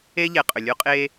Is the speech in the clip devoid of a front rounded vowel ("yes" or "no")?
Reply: no